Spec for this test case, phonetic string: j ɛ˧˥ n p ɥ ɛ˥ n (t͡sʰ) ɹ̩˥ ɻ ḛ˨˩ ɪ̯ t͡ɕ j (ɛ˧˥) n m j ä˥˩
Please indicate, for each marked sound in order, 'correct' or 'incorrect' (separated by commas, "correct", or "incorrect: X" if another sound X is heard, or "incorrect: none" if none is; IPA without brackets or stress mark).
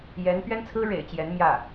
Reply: correct, correct